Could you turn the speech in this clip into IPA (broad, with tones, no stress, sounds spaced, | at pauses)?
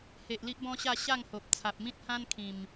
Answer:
h e˨ ʔ l i˦ ʔ b ɔ̃˦ ɕ a˥˧ ɕ a˥˧ ŋ h o˨ p̚ t͡sʰ a˨ p̚ m ĩ˦ t̚ h ã˦ n kʰ ĩ˨˩ m